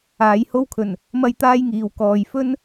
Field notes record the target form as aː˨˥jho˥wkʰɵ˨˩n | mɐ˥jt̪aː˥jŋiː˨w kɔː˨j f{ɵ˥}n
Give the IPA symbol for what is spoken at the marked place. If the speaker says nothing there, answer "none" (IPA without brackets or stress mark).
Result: ɵ˥